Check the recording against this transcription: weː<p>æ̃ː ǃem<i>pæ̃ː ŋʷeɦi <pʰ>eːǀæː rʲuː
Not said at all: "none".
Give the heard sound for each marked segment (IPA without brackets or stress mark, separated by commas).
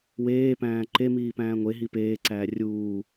p, iː, p